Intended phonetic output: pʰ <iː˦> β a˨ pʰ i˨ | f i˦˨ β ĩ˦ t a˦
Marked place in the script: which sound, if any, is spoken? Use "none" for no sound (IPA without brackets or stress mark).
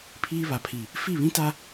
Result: iː˦